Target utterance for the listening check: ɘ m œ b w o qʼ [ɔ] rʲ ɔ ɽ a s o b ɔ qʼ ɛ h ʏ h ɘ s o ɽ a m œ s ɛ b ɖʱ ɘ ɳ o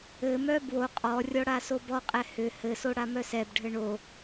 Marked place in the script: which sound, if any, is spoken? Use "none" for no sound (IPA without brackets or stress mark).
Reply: ɔ